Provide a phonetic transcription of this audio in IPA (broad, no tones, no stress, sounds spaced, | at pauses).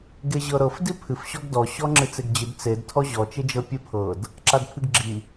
ɡ e ʑ ɤ ɾ ɤ f d i pʰ ɨ f ɕ ɔ ɡ d ɔ ɕ ɔ ŋ͡ǁ ɨ t͡s e ɡ d͡ʑ ɨ d t͡s e d tʰ ɔ ʑ ɔ t͡ʃ e d͡ʒ ɤ pʲ ɨ pʰ ɤ d | ǁ a d pʰ ɨ ɡ ɡ͡ǁ i